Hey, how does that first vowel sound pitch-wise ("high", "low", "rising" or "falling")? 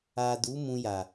low